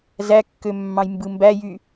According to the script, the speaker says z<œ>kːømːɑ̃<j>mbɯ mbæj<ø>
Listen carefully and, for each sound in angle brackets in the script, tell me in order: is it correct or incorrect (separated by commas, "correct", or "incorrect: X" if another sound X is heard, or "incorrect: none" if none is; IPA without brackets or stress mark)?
incorrect: æ, correct, incorrect: y